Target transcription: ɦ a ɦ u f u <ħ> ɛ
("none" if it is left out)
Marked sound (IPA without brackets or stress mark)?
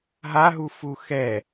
x